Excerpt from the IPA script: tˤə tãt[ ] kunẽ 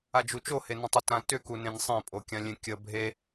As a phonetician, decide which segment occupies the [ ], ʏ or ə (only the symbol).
ʏ